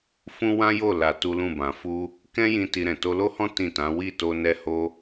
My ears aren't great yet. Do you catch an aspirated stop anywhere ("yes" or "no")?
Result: no